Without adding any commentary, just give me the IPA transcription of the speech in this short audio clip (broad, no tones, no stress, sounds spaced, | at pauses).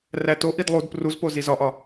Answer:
r æ t o ʔ i d lˠ u d p r u z p o z i z ɒ ʔ ɒ